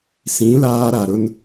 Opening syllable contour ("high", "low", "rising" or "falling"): rising